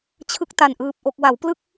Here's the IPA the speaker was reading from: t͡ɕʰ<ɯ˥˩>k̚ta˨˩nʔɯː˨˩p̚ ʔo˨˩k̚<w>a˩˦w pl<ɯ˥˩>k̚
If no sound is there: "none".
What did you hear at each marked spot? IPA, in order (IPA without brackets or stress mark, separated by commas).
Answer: ɯ˦˥, w, ɯ˥˩